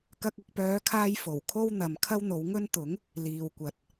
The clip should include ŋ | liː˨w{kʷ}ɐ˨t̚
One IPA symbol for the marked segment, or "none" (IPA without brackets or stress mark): kʷ